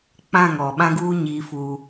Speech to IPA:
k͡p ã˦˨ ŋ ɔ˨ ɓ ã˦ ɡ uː˦ ɲ iː˦ f u˦

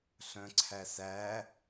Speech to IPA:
ɬ œ̃ ǀʰ æ s æ

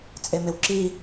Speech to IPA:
t͡sʼ e m e w ǁ i

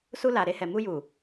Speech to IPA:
s u˧ l a˨ ɾ e˧ h ɛ˨ m u˧ j u˨

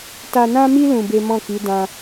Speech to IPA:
t a˧ n ã˦ m i˦ l ũ˧ b e˦ m ɔ̃˦˨ k i˨˦ d ã˧

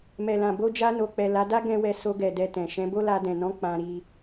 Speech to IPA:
m ɛ˨ l ã˨ b o˧ d͡ʒ a˧ n o˨ k͡p ɛ˨ l a˨˦ d a˦ ɡ ɛ̃˦ w ɛ˧ s o˧ ɡ ɛ˨ d ɛ˧ t ɛ̃˨ ʃ ɛ̃˨˦ b o˦ l a˧ d ɛ̃˨ n ɔ̃˨˦ k͡p ã˧ ɾ i˧

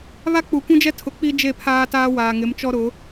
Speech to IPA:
β a˦ k͡p u˨ kʷ ũ˦ d͡ʒ ɛ˦ tʰ ʊ˨ k͡p i˦ d͡ʒ e˦˨ pʰ aː˦ t aː˦ w aː˨ ŋ ɪ˨˦ m t͡ʃ ɔ˦ ɾ ʊ˨˦

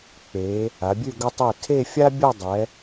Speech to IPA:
k͡p e˩˧ | a˩˧ bʲ ʉ˥˧ ɡ ə˧ tˤ ɛ˧˩ tʰ e˥˧ fʲ a˥ bʲ ɔ˥˧ dˤ ɛ˩˧

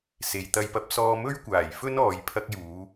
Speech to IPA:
s e˨ j t̪ ɐ˧ j p ɐ˧ p̚ s ɔː˧ m ɵ˥ ɥ kʷ aː˨˩ j f ɵ˥ n ɔː˨˧ j pʰ ɐ˥ k̚ j uː˨˥

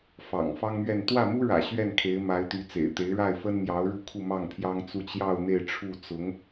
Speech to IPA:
f ɑ̰˨˩ ŋ f ɑ˥ ŋ m ɥ ɛ˥˧ n t̪ w ä˥˩ m u˥ ɻ ä̰˨˩ ɕ ɥ ɛ˥˩ n kʰ e˧˥ ɪ̯ m a˧˥ ɪ̯ t̪ y˧˥ t͡s ḛ˨˩ ɪ̯ t̪ e˧˥ ɪ̯ ɻ a˥˩ ɪ̯ f ə˥ n m j ɑ˧˥ ʊ̯ ɻ u˥˧ kʰ u˥˧ m ɑ˥˩ ŋ pʰ j ɑ˥ ŋ t͡s u˥˧ t͡ɕ j ɑ˥˧ ʊ̯ n̪ e˥˧ ɪ̯ ʈ͡ʂʰ u˥˩ t͡s ʊ˧˥ ŋ

